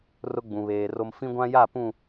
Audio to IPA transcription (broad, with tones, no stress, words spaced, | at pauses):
rʊ˦ɡ͡bũ˨βeː˨ro˦m fĩ˦ɡʷã˦ja˦˨ pũ˦˨